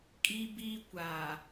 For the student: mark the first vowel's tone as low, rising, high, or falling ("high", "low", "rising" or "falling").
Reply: high